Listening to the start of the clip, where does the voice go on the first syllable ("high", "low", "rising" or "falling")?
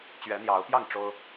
rising